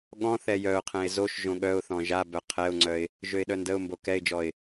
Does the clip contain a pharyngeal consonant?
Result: no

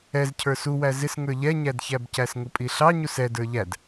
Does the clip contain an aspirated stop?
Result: yes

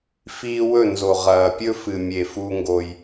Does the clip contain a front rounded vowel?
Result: no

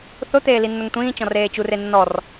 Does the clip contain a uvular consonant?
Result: no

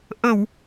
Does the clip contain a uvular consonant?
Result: no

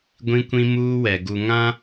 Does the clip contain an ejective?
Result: no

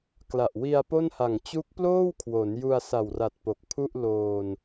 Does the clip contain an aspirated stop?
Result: yes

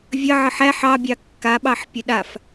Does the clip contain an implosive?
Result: yes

